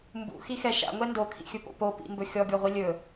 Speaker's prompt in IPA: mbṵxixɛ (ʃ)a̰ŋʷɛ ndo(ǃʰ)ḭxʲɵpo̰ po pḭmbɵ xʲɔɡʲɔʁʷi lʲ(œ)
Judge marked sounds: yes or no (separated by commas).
yes, no, no